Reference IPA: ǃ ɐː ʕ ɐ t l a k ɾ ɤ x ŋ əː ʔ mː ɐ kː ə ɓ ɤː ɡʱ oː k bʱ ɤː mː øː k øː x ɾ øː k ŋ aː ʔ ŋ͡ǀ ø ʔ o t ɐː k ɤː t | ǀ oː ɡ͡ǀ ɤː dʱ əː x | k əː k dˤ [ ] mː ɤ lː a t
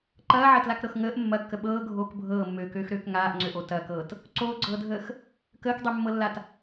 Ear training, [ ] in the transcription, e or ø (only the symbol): ø